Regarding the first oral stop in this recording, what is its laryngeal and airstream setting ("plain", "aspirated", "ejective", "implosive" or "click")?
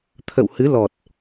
aspirated